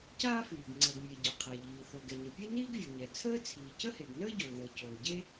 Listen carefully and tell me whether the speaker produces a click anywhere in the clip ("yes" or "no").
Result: yes